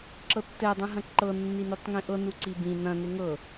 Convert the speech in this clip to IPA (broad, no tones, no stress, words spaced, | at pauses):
ǁɤtːɛ dˤɛ̃ɦɐ̃ǃɤ nːinutˤŋĩʔɤ nuǀibĩ nɐ̃ neŋɤ